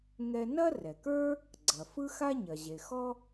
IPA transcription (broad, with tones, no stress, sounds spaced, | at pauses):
ŋ ɛ˧ n ɐ˥ r ɛ˩ k ə˞˥ | ɡ͡ǀ ɐ˩ f ɯ˥ x a˥ ɲ ɐ˩ ʑ e˩ x ɔ˥